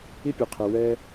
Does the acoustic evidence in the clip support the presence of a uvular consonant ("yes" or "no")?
yes